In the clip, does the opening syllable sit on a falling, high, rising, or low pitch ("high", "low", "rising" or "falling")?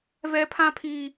high